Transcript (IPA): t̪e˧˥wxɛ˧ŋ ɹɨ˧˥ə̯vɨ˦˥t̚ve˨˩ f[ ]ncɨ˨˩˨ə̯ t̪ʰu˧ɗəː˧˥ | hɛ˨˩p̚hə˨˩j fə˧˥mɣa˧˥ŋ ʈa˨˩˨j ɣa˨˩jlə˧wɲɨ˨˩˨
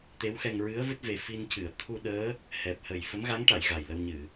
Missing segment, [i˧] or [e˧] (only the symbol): i˧